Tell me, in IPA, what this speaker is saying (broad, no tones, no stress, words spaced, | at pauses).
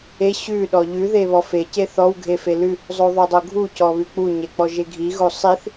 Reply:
e ɕʉ ɗɔʎʉ ðeβɔfe ceθɔw ɡʱefelʉ | zˤoðˤodˤoɡʱu cɔβʉk͡pu ɲek͡pɔʒeɡʱi ɣosˤiθ